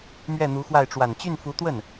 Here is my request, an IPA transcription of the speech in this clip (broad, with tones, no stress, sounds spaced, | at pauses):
m ɥ ɛ˥˩ n̪ u˧˥ x w a˥˩ ɪ̯ ʈ͡ʂ w a˨˩ n t͡ɕ y˥˩ n f u˧˥ t̪ w ə˥˩ n